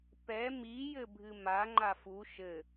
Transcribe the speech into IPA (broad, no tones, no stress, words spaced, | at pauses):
pɛ mi jɘbʱɨma ŋ͡ǃafu ʃɘ